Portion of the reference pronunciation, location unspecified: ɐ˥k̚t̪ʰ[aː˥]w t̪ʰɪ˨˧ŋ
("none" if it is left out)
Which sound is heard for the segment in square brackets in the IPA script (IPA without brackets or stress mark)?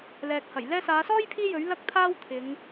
aː˥